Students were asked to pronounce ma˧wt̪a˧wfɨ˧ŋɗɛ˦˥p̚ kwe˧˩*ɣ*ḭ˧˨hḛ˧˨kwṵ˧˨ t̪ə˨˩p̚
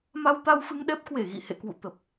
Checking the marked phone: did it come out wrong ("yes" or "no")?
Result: no